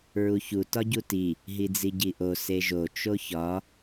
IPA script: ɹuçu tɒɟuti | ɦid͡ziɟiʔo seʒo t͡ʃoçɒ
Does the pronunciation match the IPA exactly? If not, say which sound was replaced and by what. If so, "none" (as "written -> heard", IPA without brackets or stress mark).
none